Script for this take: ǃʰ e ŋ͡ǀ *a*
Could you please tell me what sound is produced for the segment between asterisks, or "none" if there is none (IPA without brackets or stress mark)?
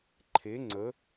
ə